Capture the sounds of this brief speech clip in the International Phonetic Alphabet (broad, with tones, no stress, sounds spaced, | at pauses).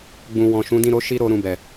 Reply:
ɡ͡b ũ˨ w ɔ̃˨ ʃ ũ˨˦ d ĩ˦˨ ɾ o˨˦ ʃ i˦ ɾ o˧ ɾ ũ˨ b ɛ˨